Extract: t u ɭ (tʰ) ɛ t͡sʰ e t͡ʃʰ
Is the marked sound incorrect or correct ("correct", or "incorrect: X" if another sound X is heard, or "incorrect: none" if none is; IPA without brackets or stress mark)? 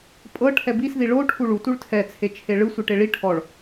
correct